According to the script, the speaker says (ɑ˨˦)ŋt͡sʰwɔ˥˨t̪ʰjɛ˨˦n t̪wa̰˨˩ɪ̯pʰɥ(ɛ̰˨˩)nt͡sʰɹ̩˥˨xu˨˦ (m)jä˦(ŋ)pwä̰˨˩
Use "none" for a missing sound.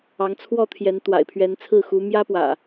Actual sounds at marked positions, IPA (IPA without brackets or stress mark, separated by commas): ɑ˨˦, ɛ˨˦, m, none